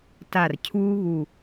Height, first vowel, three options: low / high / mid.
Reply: low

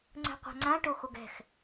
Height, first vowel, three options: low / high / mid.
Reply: mid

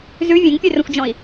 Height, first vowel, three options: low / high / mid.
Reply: high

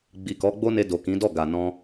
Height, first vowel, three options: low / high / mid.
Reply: high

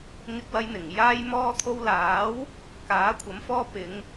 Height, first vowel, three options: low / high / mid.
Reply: high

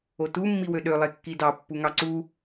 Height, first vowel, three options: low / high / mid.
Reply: mid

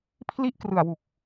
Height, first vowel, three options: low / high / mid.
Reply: high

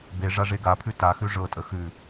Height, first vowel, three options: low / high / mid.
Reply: mid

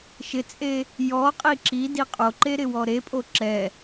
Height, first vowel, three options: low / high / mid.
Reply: high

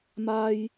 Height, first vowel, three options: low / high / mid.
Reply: low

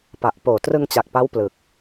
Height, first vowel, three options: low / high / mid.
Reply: low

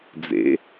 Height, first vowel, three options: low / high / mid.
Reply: mid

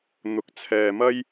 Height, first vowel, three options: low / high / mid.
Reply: high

